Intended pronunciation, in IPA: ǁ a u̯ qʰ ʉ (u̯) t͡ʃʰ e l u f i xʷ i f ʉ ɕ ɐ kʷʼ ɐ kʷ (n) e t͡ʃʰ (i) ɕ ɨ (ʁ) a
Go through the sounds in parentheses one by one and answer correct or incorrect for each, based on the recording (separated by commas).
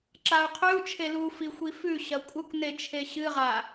correct, correct, incorrect, correct